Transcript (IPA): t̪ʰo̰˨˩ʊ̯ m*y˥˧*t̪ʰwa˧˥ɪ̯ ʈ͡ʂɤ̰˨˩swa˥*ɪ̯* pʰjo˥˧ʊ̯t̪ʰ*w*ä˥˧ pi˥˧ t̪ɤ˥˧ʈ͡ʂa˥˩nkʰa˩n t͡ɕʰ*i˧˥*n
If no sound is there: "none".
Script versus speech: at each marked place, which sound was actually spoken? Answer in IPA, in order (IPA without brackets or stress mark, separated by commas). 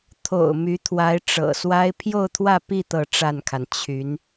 y˧˥, ɪ̯, w, y˧˥